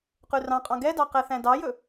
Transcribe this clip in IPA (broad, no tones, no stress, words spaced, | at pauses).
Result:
qʉrɑ̃qʼɑ̃ ɡɛdɑ qɛθæ̃dɑjɵ